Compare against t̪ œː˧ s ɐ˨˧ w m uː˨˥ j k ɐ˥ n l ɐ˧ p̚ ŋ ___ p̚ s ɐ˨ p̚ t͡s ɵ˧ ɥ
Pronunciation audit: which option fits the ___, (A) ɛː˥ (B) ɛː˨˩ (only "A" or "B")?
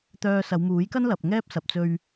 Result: A